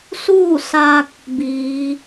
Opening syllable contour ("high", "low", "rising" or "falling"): falling